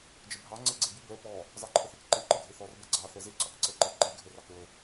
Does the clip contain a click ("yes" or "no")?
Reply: yes